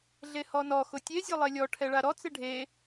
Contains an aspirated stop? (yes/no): yes